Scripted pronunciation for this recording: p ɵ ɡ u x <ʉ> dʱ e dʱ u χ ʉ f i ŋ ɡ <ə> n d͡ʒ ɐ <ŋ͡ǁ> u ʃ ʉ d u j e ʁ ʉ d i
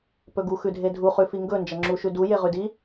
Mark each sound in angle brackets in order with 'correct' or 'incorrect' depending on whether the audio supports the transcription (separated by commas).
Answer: correct, incorrect, correct